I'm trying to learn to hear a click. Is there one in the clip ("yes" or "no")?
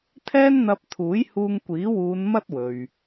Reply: no